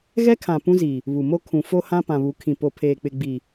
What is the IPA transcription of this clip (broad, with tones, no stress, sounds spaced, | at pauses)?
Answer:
ɣ ɛ˦ kʰ ã˨ p ũ˦ z iː˨ | β u˨ m o˦ kʰ ũ˨ f o˦ h ã˦ p ã˨ β u˨˦ kʰ ĩ˨ p o˨ pʰ eː˨ k͡p ɪ˨ ɡ͡b iː˨